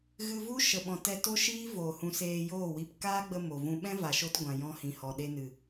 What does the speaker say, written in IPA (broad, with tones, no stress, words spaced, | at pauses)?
ɣɨ˧vu˦ ʃə˨ɓɔ̃˨ tɛ˧to˦ʃiː˦ voː˨hũ˧seː˧ joː˦˨wi˧p kaː˦ɡ͡bə˧ mo˨vũ˧ ɓɛ̃˦va˨ʃo˧t ɡʷã˨jɔ̃˧hĩ˨ hɔ˨ɗe˧nɨ˨